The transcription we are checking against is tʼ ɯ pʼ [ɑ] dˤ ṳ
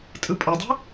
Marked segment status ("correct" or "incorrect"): incorrect